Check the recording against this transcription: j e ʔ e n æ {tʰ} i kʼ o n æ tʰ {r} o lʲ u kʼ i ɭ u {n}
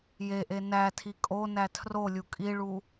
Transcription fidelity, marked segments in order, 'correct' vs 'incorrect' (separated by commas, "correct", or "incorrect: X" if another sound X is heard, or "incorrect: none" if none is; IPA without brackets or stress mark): correct, correct, incorrect: none